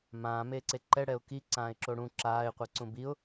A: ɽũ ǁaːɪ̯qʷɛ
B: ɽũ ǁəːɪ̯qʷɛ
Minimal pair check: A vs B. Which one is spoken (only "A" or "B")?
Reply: A